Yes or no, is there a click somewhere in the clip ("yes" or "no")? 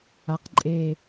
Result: yes